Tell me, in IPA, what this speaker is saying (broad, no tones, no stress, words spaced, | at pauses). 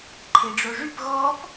ǃʰeɖ͡ʐoʐyp ɣɔp